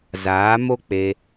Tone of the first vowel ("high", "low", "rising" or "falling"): rising